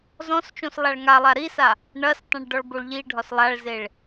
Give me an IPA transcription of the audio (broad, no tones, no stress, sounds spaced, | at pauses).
z ɔ̃ s t͡ʃ õ s lˠ a ɭ ŋ a lˠ a ɾ i s a | ɳ ɐ s tˤ ɐ̃ ɭ ɖ ɔ ɭ b o ɭ ʎ i ɖʱ ɒ s lˠ a ɭ z e ɭ